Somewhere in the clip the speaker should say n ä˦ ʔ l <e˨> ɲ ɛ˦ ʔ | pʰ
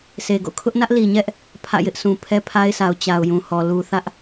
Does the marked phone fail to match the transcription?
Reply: yes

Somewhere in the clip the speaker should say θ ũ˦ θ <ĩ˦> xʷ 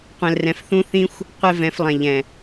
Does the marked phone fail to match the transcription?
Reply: no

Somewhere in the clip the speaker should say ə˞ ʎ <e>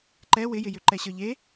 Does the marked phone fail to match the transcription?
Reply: no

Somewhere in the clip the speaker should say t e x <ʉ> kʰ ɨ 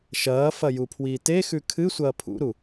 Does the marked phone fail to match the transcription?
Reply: no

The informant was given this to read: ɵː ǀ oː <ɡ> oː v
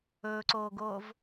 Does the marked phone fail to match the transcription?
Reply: no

